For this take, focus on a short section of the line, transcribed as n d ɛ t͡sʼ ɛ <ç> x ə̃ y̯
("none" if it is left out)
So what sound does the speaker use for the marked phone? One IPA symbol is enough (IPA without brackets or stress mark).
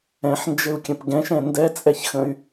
ç